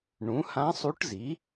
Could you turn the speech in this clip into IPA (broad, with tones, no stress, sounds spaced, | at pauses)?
ɳ ũ˩˥ h ã˧˥ sˤ u˧˥ ʈ z i˩˥